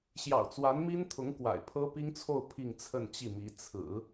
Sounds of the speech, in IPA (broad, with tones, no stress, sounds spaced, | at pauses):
ɕ j ɑ̰˨˩ ʊ̯ t͡s w a˧˥ n m i˥ n t̪ʰ ʊ˧˥ ŋ k w a̰˨˩ ɪ̯ pʰ ɤ˥ p i˥ ŋ t͡sʰ o˥˧ ʊ̯ pʰ i˥˧ ŋ t͡sʰ ə˥˧ n t͡ɕ i˥˩ m i˧˥ t͡sʰ ɹ̩˨˩˦